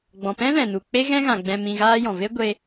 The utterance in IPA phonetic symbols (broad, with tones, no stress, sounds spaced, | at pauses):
ɡ͡b ɔ̃˨ p ɛ̃˦ v ɛ̃˨ n u˨ k͡p e˦ ɣ ɛ̃˦ ɣ ã˨ ɡ͡b ɛ̃˧ m ĩ˧ ɣ aː˦ j ɔ̃˨ v e˦ ɡʷ e˧